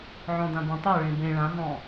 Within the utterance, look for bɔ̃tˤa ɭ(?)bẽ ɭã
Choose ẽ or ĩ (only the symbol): ẽ